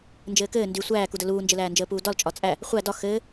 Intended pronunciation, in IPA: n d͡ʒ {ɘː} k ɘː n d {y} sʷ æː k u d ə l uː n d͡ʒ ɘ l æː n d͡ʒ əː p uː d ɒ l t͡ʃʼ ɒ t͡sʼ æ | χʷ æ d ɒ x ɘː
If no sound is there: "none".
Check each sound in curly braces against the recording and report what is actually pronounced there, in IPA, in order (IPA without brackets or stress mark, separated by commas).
ɘː, y